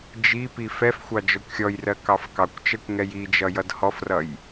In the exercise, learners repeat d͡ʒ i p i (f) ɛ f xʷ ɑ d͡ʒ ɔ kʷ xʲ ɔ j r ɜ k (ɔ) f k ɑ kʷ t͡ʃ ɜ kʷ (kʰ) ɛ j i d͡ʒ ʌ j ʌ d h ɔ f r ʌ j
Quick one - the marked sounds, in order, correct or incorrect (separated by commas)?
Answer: correct, incorrect, incorrect